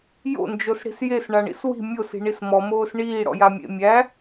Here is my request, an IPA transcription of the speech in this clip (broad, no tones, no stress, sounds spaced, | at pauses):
j o̰ n d͡ʒ o s ɽ i̤ s j e s ɳ a ɳ ḭ s w i̤ mʲ o s i̤ ɳ i s m ɔ m oː s ɳ iː ɽ ɔ̰ j a mʲ ḛ mʲ æ